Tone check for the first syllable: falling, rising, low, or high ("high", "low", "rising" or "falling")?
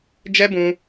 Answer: high